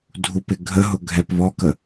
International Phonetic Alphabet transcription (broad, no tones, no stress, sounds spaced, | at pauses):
dʱ u p ɪ ɡʱ ə ɦ ʊ ɡʱ ɛ p β ɔ k ə